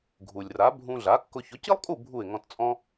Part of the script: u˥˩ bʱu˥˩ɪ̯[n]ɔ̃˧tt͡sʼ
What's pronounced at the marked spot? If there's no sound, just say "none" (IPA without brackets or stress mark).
ŋ